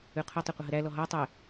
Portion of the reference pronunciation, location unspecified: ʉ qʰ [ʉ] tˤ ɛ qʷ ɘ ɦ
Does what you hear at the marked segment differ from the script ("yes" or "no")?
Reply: yes